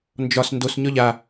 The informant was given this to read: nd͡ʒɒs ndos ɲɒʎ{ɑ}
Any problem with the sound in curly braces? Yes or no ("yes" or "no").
yes